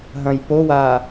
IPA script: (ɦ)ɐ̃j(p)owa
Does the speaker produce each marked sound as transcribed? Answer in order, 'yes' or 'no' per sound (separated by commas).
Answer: yes, yes